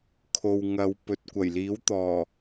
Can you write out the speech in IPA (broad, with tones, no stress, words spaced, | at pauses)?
kʰo˨wŋɐ˨˧w pɵ˨t̚kʷɐ˨˩j liː˨˥wt̪ɔː˨˩